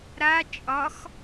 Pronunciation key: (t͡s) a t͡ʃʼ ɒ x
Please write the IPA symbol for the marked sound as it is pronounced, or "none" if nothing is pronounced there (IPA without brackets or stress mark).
ɾ